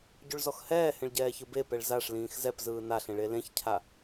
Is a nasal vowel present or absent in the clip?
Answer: present